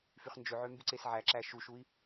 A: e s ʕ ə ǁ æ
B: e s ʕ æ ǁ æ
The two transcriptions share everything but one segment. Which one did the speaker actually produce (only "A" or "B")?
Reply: B